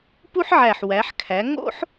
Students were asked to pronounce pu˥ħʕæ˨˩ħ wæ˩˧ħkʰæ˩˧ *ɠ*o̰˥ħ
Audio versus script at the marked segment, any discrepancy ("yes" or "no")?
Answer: yes